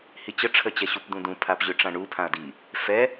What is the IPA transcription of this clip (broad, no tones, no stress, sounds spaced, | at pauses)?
h i t͡ɕ ə ʈ͡ʂʰ ə t͡ɕ ɛ ɕ u p d̪ ũ d ũ pʰ a p ʑ ʏ ʈ͡ʂ ã ɳ u pʰ ã ɐ̯ d i | f ɛ